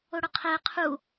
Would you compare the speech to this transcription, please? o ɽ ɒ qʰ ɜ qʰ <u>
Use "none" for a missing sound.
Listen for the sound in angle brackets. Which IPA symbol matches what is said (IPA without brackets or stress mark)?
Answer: u